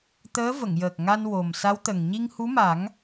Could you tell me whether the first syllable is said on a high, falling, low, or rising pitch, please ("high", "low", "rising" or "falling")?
rising